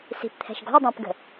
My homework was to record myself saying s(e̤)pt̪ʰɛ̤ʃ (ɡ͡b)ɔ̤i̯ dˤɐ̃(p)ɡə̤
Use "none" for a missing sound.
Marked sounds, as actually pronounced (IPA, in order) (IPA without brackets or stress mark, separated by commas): i̤, ɡ, p